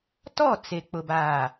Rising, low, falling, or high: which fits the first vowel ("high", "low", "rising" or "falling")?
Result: falling